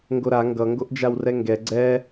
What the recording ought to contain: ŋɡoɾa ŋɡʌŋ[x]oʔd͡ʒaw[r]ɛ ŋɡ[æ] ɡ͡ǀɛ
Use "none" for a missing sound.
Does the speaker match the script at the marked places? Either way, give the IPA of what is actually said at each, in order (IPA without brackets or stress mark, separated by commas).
ɡ, r, ɛ